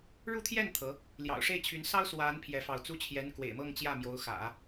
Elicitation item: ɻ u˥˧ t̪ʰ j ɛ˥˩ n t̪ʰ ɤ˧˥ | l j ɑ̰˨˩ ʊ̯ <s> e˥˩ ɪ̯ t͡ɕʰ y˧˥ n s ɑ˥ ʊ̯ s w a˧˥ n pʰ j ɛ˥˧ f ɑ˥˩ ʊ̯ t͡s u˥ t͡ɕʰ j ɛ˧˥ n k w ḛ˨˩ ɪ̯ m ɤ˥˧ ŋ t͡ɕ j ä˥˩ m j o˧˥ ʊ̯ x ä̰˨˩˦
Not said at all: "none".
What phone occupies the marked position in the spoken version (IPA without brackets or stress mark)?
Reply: ʂ